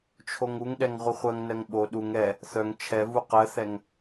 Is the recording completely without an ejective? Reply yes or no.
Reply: yes